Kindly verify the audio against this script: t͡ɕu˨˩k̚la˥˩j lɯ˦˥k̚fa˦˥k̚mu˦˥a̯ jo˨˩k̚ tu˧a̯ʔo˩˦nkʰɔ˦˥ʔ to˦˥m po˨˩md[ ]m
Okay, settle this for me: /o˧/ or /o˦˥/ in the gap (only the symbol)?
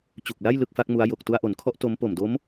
o˦˥